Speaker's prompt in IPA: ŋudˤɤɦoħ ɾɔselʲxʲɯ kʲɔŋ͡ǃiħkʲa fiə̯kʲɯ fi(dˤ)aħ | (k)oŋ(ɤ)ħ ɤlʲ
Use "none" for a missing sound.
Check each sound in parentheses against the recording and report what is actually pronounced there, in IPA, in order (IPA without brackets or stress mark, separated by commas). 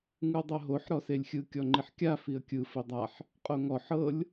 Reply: dˤ, qʼ, ɔ